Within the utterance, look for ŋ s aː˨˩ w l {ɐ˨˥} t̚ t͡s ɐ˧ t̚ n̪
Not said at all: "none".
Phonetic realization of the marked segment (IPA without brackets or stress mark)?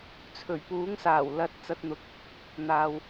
ɐ˧